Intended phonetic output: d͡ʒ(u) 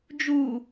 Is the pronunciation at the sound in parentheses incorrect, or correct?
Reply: correct